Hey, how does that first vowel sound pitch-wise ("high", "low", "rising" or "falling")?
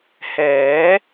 rising